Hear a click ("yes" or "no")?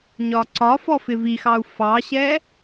yes